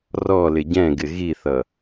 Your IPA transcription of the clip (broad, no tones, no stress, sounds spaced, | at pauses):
r ɔ l ɪ ɟ ɛ̃ ɡ ɪ ɣ i θ ʌ